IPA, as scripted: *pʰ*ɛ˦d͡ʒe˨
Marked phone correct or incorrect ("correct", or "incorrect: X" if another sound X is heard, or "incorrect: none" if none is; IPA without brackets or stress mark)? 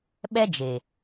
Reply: incorrect: ɓ